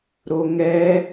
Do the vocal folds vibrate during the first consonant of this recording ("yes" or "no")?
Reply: yes